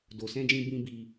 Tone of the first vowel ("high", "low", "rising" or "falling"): low